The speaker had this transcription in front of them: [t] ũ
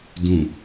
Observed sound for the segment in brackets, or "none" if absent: d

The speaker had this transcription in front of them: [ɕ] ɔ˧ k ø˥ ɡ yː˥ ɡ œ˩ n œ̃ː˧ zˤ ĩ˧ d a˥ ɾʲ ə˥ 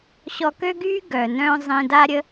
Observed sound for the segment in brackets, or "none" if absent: ɕ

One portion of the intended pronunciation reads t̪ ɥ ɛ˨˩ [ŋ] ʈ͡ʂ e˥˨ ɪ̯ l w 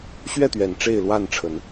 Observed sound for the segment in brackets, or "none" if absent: n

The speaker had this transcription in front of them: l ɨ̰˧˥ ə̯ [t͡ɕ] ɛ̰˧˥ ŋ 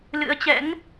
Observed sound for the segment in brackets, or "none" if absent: t͡ɕ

